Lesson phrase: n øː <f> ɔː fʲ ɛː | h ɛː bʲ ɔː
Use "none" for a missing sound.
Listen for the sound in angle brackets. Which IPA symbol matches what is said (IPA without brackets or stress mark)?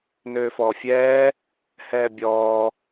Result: f